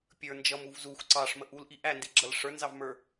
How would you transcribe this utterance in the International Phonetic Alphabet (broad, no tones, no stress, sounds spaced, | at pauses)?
pʲ ə˞ n d͡ʒ ʌ m u v z u xʷ ǀ ɑ ʂ m ə ʔ u l ʔ i ʔ æ n d i ɡ͡ǁ ʌ l ʂ ə˞ n z ɑ v m ə˞